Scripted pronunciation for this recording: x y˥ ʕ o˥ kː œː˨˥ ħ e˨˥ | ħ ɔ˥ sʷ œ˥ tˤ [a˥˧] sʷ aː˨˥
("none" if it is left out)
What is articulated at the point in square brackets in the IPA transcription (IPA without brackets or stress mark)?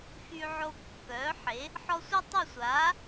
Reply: a˥˧